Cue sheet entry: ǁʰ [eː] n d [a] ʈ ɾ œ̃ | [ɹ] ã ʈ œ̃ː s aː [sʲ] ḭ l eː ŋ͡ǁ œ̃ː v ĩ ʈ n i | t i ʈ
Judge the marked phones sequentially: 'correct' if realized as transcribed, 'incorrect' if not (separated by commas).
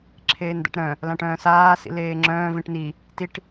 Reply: correct, incorrect, incorrect, incorrect